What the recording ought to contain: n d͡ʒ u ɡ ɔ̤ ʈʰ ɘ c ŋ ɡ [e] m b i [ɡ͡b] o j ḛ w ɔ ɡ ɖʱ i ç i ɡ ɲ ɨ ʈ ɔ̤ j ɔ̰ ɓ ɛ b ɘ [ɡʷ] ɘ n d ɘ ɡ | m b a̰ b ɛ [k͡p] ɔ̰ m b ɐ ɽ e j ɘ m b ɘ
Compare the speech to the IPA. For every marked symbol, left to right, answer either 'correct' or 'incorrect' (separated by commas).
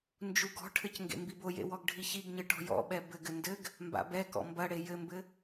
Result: incorrect, incorrect, incorrect, incorrect